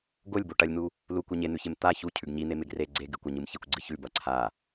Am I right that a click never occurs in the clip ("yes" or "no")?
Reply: no